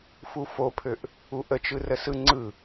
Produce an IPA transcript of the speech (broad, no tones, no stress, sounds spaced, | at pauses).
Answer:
f u f o pʰ ø ʔ | u ʔ ə t͡ʃ ɯ r ə s ɯ ŋ͡ǀ ɯ